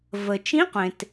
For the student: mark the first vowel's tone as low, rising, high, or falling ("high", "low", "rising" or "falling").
low